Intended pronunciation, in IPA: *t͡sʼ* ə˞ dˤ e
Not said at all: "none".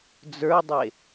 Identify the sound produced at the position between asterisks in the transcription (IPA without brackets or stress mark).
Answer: d͡z